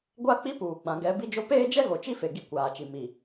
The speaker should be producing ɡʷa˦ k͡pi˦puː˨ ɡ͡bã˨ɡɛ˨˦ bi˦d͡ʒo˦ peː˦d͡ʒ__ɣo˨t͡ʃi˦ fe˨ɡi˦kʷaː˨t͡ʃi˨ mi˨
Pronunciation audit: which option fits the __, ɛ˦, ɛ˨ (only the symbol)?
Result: ɛ˦